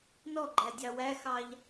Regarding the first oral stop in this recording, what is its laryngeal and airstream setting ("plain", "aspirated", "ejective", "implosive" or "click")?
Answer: click